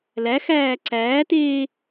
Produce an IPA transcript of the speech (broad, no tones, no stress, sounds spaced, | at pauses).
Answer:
l æ x æː ǀ æː t eː